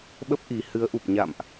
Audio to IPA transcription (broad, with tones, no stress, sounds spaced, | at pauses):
ɓ ə˦˥ p̚ ʔ i˨˩ h ɨ˨˦ ə̯ ʔ u˨˩ p̚ ɲ a̰˧˨ m ʔ